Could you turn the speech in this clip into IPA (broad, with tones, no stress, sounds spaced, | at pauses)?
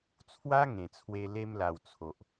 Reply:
t͡sʰ w a˦ ŋ ẽ˨˩ t͡sʰ w e˧ l e˧ m l a˨˩ w t͡sʰ o˨ ʔ